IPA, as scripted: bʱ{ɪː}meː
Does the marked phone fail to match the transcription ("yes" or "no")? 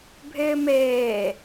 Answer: no